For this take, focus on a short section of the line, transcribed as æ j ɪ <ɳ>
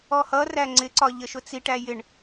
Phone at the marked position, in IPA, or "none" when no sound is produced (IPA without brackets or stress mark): ɳ